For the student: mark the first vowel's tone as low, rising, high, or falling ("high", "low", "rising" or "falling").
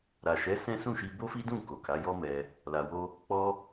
low